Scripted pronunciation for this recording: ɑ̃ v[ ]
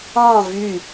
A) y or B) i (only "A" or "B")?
A